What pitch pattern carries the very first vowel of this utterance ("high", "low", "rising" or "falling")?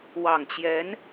low